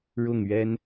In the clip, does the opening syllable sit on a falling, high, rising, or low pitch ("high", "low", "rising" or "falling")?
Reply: falling